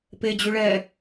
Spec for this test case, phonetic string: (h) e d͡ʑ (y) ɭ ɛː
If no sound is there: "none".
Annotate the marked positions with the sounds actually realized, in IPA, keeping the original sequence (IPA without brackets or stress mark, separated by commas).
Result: p, y